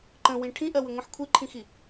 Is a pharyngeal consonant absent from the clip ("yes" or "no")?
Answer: no